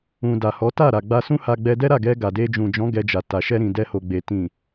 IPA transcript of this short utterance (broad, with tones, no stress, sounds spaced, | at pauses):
ũ˨ d a˨ h ɔ˨˦ t a˦˨ ɾ a˨ ɡ͡b a˧ s ũ˦ h a˧ ɡ͡b ɛ˧ d ɛ˦ ɾ a˦˨ ɡ ɛ˧ ɡ a˨ d e˧ d͡ʒ ũ˨ d͡ʒ ɔ̃˨˦ ɡ ɛ˧ d͡ʒ a˨ t a˨ ʃ ɛ˧ ɾ ĩ˨ d ɛ˧ h o˨ ɡ͡b e˨ t ĩ˨